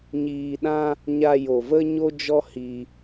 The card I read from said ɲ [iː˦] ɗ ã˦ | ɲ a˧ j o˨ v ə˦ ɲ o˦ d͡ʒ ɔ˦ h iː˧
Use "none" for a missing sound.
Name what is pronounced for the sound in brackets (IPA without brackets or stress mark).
iː˧